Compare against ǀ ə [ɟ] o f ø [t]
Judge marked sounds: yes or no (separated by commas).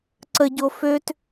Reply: yes, yes